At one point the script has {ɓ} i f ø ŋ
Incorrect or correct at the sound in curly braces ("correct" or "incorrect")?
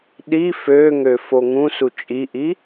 incorrect